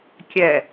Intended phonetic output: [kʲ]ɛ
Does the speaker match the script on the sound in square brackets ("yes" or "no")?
yes